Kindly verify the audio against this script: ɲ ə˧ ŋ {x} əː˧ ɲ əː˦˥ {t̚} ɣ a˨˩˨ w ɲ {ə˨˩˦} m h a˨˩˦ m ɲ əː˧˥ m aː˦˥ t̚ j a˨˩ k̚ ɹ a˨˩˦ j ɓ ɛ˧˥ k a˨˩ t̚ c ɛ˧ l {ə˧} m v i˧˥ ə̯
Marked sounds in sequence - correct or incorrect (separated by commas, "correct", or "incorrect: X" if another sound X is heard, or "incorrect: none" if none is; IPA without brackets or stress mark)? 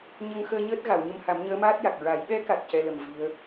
correct, correct, incorrect: ə˧, incorrect: ə˨˩